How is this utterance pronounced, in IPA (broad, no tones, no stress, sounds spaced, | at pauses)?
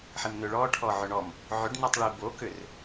ħ i m n ʏ ɭ ɔ ʈʰ ɔ ʕ ʏ ɳ ɔ m | ʕ ʏ ɖ n ɛ tˤ ɭ i b o k ʏ r